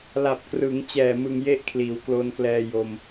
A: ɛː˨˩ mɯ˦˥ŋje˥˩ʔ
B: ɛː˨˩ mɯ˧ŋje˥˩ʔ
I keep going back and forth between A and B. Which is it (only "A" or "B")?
B